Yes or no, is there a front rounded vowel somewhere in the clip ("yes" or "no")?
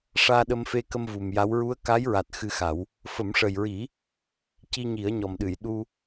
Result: no